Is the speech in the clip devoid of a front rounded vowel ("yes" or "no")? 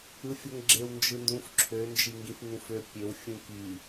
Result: no